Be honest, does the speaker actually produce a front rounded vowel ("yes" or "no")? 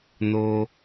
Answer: no